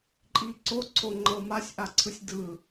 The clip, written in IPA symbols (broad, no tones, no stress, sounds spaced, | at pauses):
ǃʼ i ǀ o ǀʰ o ŋ͡ǃ ɤ m a sʲ ʔ a ǀʰ ɯ sʲ d ɯ